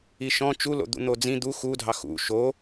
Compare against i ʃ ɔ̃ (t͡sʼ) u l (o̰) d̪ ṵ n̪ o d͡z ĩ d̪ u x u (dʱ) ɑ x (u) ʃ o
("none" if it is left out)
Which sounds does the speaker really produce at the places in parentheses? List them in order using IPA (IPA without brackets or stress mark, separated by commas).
t͡ʃ, o̰, dʱ, ṵ